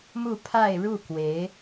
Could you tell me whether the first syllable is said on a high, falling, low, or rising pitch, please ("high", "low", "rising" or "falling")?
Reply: falling